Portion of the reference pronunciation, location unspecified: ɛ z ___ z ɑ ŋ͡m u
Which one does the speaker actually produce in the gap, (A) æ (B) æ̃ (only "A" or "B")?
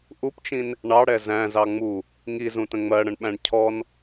B